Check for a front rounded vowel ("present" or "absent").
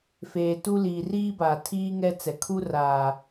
absent